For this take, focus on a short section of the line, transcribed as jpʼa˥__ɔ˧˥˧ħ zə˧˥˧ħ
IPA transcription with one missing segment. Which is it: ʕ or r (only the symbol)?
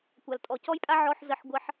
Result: ʕ